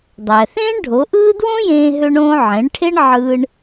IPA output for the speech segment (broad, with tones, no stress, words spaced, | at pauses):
dˤæ˩θẽː˥ɳɖʱo˩˥ʔɯː˥ dwõ˥jẽː˧ɦø˧ɳõː˧ ʕẽ˩˥ɳʈʰe˥ɳ ʕɯ˧ɳ